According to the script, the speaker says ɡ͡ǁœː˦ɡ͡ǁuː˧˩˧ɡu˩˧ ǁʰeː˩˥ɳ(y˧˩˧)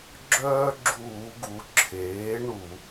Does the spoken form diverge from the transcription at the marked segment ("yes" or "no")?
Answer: yes